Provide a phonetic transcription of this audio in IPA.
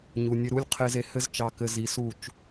ɲ u˨ nʲ ɘ˧ ɾ u˦ lʲ qʰ e˦ z e˧ h ɘ˦ z t͡ʃ ɑ˧ k ɘ˧ z i˧ s u˦˨ t͡ʃ

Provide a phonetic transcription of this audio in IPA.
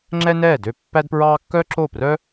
ŋ͡ǁ ɛ˥ n ɛː˥˩ d ø˥˩ pː æ˥ d p ɹ ɑː˥ kː œ˥ ǁ o˥˩ p r œ˥

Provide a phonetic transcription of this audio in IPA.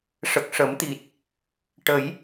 ʂ ə˨˩ k̚ ʂ ə˨˩˦ m t̪ i˨˩ t̚ | ʈ ə˨˩˦ j

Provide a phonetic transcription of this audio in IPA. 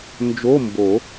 n d͡ʒ o˧˥˧ m b o˨˩˦

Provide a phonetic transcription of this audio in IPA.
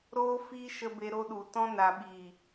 ɾ o˦ f iː˦ ʃ ə˧ b e˧ ɾ o˧ ɗ u˨ t ɔ̃˧ n a˨ ɓ iː˨

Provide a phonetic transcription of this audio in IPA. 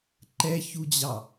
ǃ ɛ ç u d͡ʑ ɑ

